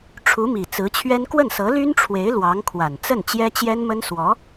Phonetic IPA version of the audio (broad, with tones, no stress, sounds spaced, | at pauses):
ʈ͡ʂʰ u˧˥ m i˨˩ t͡s ɹ̩˧˥ t͡ɕʰ ɥ ɛ˥ n k w ə˥˩ n s ɤ˧˥ l y˥ n ʈ͡ʂʰ w e˧˥ ɪ̯ l w ɑ˧˥ ŋ kʰ w a˨˩ n t͡s ə˥˩ n t͡ɕ j ɛ˥ t͡ɕ j ɛ˥ n m ə˥ n s w ɔ˧˥